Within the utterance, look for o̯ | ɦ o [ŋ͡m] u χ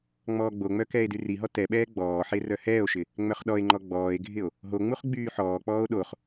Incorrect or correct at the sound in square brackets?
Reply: correct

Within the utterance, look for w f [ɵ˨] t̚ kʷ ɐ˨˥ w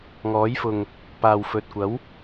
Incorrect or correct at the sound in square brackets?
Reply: correct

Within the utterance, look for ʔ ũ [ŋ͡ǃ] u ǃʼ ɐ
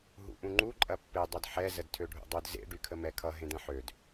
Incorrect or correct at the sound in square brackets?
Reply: correct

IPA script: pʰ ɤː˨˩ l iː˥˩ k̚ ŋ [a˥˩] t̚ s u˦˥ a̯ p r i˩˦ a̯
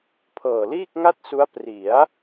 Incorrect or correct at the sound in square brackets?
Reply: correct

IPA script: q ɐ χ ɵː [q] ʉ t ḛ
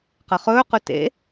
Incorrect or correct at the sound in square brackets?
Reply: correct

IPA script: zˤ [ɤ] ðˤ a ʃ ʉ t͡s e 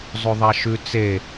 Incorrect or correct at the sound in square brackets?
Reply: incorrect: ɵ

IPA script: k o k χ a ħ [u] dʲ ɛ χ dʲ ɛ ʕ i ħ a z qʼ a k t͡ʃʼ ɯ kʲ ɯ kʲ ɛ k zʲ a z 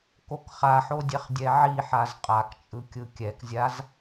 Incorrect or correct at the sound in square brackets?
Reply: incorrect: o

